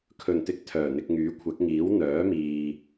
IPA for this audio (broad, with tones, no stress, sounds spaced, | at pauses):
kʰ ɵ˨˩ n t̪ ɪ˧ k̚ t̪ʰ œː˨˩ n̪ ɪ˧ k̚ ŋ yː˨˥ kʷʰ ɐ˨˥ k̚ ŋ iː˨˥ w n̪ œː˨˥ m iː˨